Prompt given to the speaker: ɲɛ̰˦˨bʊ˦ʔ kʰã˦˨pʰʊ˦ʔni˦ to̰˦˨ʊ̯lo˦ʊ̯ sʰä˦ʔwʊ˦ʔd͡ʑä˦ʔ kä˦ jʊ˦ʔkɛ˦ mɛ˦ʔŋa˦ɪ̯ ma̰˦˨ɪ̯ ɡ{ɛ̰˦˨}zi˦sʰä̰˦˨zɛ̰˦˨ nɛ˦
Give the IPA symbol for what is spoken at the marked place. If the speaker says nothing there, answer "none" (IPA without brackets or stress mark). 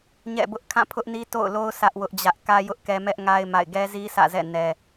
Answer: ɛ˦